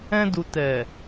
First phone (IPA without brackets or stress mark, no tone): ɛ̃